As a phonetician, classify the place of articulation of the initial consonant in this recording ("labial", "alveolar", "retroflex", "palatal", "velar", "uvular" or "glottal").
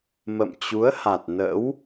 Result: labial